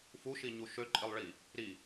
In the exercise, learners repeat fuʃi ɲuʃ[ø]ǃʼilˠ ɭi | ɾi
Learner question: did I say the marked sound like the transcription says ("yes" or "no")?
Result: yes